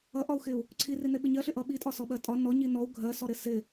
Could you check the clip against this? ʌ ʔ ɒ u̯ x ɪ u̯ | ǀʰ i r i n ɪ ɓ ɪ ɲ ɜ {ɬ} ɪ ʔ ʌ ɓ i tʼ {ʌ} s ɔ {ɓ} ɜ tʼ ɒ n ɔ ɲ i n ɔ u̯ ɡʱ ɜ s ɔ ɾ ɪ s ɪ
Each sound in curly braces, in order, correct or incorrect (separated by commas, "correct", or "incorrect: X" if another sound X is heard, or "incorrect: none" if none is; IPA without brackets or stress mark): correct, incorrect: ɒ, correct